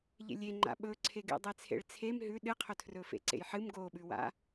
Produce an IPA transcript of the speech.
ʎ ḛ lʲ e ŋ͡ǃ a̰ ɓ ɵ ǀʰ e ɡ ḛ dˤ e t͡sʰ ḛ ɭ t͡sʰ e m ɦ ʉ ɗ ɨ qʰ ɵ tʰ r ɵ f ḛ ǀ ḛ j ħ ɨ m ɡ o ɓ ʉ w a̰

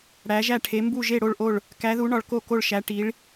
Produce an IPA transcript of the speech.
ɽ æ˩˧ ʒ æ˧˩ ʈʰ e˩˧ m b u˧˩ ʒ e˧˩ ɽ o˧˩ ɭ ʔ o˧˩ ɭ | k æ˩˧ ð u˩˧ ɳ ɒ˩˧ ɭ k o˧˩ k o˧˩ ɭ ʃ æ˩˧ ʈ i˩˧ ɭ

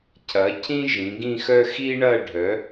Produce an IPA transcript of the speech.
cʰ ɐ˨˥ cʰ ĩ˥ ʒ ĩ˨˥ ɡ ĩ˥˧ x œ˥ x i˥ ɳ ɐ˥˧ ɖʱ œ˨˥

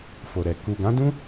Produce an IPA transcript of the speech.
f o˨ ɾ ɛ˨ k u˨ ɡ ã˨˦ d ũ˦

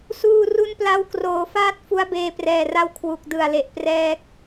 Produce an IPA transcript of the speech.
s uː˧ r u˦˥ n p l a˦˥ w k r oː˩˦ f aː˦˥ t̚ f u˦˥ a̯ b eː˧ p r ɛː˨˩ r a˦˥ w kʰ w u˨˩ k̚ d ɯ˨˩ a̯ l e˨˩ ʔ p r ɛː˦˥ k̚

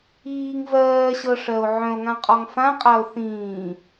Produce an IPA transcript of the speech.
iː ŋ v ɜː ɕ ɤ ʂ ɜ o̯ ʕ œ̃ o̯ ŋ ã qʼ ɔ ŋ f ã qʼ a o̯ θ ĩː

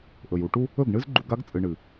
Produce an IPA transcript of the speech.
ʔ ɵ˨ j u˧ ʈ u˦ | ɵ˦˨ ɡ ɳ ɨ˦ z ɡ͡ǃ u˧ ɡ a˦ ɡ t͡sʼ ɨ˨ ɳ ɨ˨

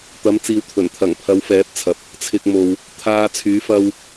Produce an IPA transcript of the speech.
t̪ ɐ˨˥ m t͡s iː˨ w t̪ʰ ɵ˨˩ n t̪ʰ ɐ˨˩ ŋ pʰ ɐ˨˧ w f ɛː˨˥ p̚ t͡sʰ ɐ˨ p̚ | t͡sʰ ɪ˨ k̚ m o˨ w | t̪ʰ aː˧ t͡sʰ yː˨˥ f ɐ˥ w

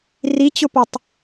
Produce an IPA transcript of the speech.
r i t͡ɕ ʊ p a tˤ

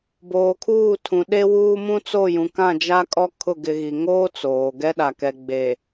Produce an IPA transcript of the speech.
b oː˨ kʰ uː˦˨ tʰ ũ˨ ɗ e˦ w uː˦ m ũ˦ t͡s o˦˨ j ũ˨ k ã˦˨ d͡ʒ a˦ kʼ ɔ˦ kʰ ʊ˦˨ ɡ ɪ˨ ɣ i˨ ŋ oː˦ t͡s oː˨ ɡ ɛ˦ ɗ a˨ k ɛ˨ ɡ͡b e˨

